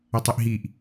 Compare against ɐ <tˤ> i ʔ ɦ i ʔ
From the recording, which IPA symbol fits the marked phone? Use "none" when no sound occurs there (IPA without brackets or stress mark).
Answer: tˤ